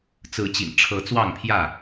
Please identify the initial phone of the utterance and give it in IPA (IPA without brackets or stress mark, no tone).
t͡s